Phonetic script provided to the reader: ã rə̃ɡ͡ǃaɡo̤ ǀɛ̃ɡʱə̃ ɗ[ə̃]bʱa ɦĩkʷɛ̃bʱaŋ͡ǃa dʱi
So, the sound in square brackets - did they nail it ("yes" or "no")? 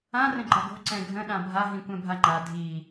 no